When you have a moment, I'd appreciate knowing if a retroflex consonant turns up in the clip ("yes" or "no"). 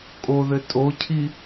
no